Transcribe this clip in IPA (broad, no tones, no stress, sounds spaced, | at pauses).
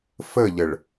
f ə ʎ ə ɭ